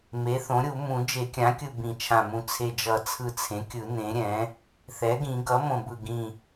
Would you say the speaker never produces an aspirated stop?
no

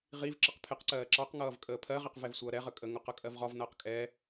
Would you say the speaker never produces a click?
no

